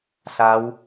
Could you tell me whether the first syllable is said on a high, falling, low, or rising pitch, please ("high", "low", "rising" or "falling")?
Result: rising